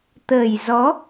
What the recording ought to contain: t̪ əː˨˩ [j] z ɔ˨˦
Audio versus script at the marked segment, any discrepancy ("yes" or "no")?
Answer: no